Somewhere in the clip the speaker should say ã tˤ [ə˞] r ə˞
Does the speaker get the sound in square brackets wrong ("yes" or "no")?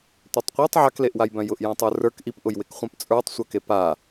no